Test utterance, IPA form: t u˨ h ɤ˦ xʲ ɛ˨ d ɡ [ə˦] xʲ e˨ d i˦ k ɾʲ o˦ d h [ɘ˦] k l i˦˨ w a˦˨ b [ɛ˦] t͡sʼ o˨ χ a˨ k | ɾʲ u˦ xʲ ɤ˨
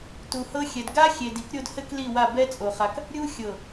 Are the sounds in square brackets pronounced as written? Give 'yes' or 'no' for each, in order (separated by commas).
no, yes, yes